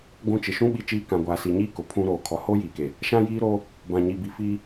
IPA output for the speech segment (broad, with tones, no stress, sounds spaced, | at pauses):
ɡʷ ũ˦ t͡ʃ ɪ˨ ʃ ũ˦ ɓ i˦ t͡ʃ iː˦ k ã˨ ɡʷ aː˨ s i˨ ɲ iː˦ k ʊ˨ pʰ ũ˦ ɾ oː˨ kʰ ɔ˨ h oː˦ j iː˨ k e˨ | ʃ ã˦ j iː˦ ɾ oː˦ | b ã˨ ɲ i˨ b i˨ f iː˦